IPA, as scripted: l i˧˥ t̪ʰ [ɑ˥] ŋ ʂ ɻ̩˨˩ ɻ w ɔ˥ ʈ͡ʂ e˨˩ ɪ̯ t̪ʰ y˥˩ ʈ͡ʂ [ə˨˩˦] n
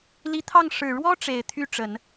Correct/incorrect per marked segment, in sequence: incorrect: ɑ˥˩, correct

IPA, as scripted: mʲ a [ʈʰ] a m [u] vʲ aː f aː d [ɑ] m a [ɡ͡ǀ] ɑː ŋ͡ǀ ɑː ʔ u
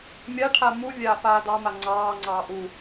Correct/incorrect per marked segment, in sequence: correct, correct, correct, incorrect: ŋ͡ǀ

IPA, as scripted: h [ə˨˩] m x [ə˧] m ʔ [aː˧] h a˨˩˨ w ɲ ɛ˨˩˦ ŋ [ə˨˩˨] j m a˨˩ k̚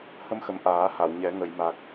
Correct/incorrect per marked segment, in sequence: incorrect: ə˧, incorrect: ə˨˩, incorrect: aː˨˩˦, correct

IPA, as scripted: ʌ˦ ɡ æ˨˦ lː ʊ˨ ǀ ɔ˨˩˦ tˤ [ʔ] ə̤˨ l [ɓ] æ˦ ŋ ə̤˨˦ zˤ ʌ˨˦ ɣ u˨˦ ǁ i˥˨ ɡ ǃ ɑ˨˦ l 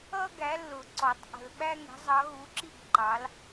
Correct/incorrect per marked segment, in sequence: correct, correct

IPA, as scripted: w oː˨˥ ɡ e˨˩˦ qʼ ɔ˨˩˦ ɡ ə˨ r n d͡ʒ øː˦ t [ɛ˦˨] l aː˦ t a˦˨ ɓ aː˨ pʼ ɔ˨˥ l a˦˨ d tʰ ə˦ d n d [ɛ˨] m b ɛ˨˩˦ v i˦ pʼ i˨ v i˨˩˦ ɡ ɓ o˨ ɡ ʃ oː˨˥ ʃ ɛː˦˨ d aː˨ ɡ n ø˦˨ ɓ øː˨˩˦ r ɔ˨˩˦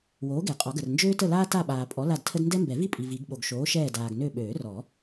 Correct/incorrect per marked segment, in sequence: incorrect: ə˦˨, incorrect: ɛ˦

